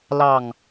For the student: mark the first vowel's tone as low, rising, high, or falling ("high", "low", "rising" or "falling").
low